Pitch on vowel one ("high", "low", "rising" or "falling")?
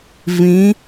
rising